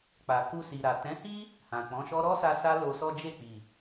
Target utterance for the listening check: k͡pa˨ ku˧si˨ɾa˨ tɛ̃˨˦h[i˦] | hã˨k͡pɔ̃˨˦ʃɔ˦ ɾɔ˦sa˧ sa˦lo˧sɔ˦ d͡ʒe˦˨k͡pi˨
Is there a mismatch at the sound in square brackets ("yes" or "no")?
no